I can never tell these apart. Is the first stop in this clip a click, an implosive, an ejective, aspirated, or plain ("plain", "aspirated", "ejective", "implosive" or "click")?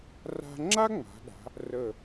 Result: click